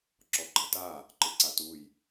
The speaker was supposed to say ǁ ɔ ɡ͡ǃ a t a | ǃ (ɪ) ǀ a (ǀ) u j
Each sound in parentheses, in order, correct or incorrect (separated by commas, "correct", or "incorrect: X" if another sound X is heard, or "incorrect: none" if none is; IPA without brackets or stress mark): correct, incorrect: t